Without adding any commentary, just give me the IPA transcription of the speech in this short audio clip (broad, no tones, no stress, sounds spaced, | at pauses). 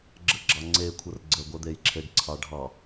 ɡ͡ǁ ə ɡ͡ǁ ɑ ŋ͡ǀ e kʷʰ ə r ɡ͡ǀ ə ɡʷ ɛ d̪ e j ǁʰ e ɖ ǀʰ ɑ ɖʱ ɑ